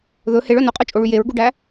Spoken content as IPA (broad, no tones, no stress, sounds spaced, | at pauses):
ð ɵ h e ɭ œ n o qʼ œ t͡ʃʼ o ɭ y j e ɹ ɡ u ɖ æ